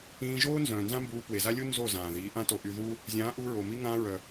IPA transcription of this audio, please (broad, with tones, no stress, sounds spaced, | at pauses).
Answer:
ĩː˧ ʒ oː˦ n z œ̃ː˨ n z ã˦ m b uː˧ p w e˨ z a˦ lʲ u˦ n z o˦˨ z ãː˨ ð iː˨˦ ʔ ã˦ t o˧ ʔ y˧ ð uː˦ | zʲ ãː˨˦ ʔ uː˧ ɹ oː˨ m i˧ ŋ ãː˧ ɹ œ˨